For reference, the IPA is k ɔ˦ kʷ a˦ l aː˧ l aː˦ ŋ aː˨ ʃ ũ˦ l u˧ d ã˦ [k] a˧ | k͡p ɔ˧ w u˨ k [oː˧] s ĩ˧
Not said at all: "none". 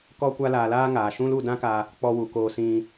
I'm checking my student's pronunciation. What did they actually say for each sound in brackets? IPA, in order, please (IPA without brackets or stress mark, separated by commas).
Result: k, oː˧